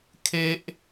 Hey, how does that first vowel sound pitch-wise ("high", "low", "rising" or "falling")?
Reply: high